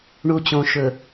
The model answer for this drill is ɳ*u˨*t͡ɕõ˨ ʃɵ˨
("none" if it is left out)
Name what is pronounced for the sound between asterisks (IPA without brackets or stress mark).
u˨